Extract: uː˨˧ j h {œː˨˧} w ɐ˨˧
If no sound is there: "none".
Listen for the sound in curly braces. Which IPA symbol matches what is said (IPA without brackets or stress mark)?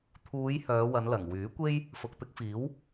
œː˨˧